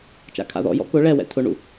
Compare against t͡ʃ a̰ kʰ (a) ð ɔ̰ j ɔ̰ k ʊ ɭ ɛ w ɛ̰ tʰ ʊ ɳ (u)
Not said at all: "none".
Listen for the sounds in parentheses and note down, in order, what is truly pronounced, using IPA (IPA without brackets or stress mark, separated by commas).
a̰, ṵ